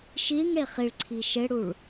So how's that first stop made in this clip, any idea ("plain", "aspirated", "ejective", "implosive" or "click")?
click